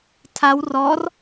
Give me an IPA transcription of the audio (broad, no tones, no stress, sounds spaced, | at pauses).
tʰ a w r ɔ r